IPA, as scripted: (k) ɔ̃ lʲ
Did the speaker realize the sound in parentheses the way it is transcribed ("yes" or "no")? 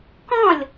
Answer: yes